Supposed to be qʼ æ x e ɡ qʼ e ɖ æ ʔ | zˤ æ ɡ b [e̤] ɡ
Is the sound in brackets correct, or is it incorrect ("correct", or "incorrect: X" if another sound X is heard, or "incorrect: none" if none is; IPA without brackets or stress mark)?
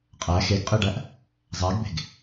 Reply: correct